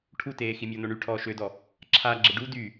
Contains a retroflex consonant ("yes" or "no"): yes